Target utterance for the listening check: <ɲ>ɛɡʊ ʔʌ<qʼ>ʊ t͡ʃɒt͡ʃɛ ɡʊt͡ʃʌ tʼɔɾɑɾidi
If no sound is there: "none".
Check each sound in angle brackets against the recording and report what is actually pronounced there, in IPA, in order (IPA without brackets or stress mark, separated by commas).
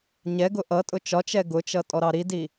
ɲ, tʼ